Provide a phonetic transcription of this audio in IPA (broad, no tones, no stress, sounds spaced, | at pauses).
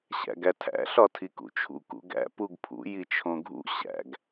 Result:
ɕ æ̰ ɡ æ tʰ æ̰ ɬ ɒ tʰ i k ṵ t͡ʃʰ ṵ k ṵ ɡ æ̰ p u ɡ pʰ ṵ j i t͡ʃʰ õ ɡʱ ṵ ɕ æ̰ ɡ